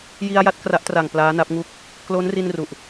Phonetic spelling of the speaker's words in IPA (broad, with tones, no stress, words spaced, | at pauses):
ji˧a̯ja˦˥t̚ kra˦˥ʔtra˨˩ŋ plaː˦˥na˦˥p̚ŋuː˥˩k̚ | klo˦˥nri˧n ru˨˩ʔ